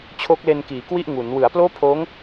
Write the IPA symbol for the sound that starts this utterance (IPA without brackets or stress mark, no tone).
t͡ɕʰ